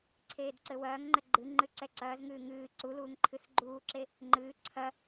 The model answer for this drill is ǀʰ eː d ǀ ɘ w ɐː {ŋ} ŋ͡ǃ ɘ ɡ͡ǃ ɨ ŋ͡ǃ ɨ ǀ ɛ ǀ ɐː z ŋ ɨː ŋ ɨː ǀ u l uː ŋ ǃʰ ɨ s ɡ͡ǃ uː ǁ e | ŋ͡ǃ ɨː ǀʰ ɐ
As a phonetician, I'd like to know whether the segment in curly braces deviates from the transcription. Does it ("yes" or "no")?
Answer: no